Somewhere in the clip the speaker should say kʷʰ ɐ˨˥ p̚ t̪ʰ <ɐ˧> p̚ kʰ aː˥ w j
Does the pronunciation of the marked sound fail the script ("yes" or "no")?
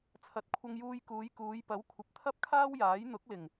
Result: yes